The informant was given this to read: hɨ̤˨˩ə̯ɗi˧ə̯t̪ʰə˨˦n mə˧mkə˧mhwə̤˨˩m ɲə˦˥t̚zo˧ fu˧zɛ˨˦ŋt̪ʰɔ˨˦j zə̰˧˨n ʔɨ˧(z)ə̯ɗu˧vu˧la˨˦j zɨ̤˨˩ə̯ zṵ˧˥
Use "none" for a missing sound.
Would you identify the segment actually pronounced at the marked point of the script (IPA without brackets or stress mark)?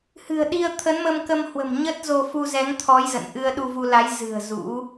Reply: none